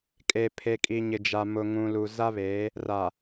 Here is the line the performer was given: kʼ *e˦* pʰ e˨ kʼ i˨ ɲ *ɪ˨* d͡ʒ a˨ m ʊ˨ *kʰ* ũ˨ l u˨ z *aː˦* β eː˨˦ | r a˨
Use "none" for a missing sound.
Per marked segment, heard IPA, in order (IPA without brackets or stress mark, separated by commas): e˨, ɪ˨, ŋ, a˦